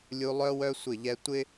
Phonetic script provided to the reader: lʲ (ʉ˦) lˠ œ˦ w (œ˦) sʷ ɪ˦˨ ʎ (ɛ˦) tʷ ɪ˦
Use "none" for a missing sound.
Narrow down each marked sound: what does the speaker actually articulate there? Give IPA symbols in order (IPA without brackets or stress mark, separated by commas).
u˦, œ˦, ɛ˦